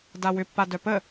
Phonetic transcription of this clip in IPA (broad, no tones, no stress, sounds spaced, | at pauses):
d a w ʏ pː a d œ p ə